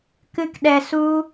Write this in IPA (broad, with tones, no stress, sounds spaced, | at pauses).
k ɨ˦ k ɗ ɛ˧ s u˦